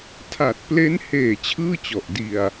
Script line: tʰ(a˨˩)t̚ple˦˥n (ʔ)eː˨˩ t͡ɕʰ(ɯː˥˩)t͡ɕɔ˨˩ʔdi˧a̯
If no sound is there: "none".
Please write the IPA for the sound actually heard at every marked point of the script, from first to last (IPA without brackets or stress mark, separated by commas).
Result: a˨˩, h, ɯː˥˩